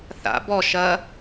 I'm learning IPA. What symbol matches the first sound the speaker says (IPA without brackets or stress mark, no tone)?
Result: θ